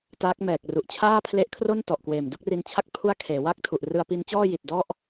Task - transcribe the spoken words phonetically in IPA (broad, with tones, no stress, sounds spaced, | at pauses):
t aː˦˥ k̚ m ɛː˨˩ k̚ r u˨˩ ʔ t͡ɕʰ aː˥˩ pʰ l e˦˥ ʔ kʰ r o˥˩ n t ɔ˨˩ ʔ k w eː˨˩ m d u˥˩ k̚ r i˧ n t͡ɕʰ a˥˩ k̚ pʰ u˥˩ a̯ kʰ eː˩˦ w a˥˩ k̚ tʰ u˨˩ ʔ r ɯ˧ a̯ p i˦˥ n t͡ɕ ɔː˥˩ j i˨˩ t̚ d ɔ˥˩ ʔ